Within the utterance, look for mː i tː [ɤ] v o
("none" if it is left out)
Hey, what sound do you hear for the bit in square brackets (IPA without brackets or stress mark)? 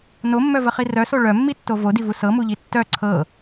o